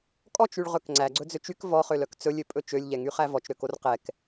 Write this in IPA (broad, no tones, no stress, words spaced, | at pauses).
kʼɔt͡ʃyɭʁɵk ŋ͡ǀæɡ͡ǀɵd͡zøt͡ʃ yk vɔχølœk t͡sɵlʲøpʼɵ t͡ʃølʲʎɛŋyχæ vɔt͡ʃɾøkor qɛk